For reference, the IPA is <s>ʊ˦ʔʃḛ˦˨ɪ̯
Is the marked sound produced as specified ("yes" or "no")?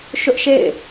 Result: no